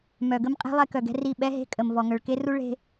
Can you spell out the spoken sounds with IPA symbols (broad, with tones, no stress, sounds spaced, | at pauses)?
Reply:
m œ˨ ɡ ə˦ m qʼ e̤˦ lˠ e˦ k œ˨ ɡ ɛ̤˦ r i˦˨ ɓ ɛ˦ ɦ e̤˦ kʼ ə˨ m v ɔ˨ ŋ œ˨ ɭ k e˦ r u˦ ɭ e̤˦